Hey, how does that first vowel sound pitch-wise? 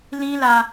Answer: high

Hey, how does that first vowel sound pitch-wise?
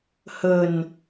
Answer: low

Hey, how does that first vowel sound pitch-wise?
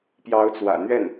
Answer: rising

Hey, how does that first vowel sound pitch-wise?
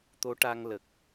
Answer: rising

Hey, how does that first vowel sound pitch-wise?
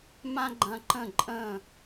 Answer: high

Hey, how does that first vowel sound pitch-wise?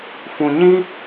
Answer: low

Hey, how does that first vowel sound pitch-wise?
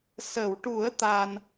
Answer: low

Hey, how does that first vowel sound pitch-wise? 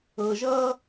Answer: low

